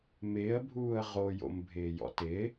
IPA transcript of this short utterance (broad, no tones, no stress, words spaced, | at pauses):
mɪːə̯bʱuːə̯ ʁojo̰mbʱɪːjɔ̰ tɪ